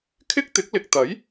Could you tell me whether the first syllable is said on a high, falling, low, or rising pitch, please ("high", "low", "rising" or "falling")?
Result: high